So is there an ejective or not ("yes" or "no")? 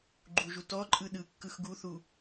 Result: yes